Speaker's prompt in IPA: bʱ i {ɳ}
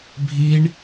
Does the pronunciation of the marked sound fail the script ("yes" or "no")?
no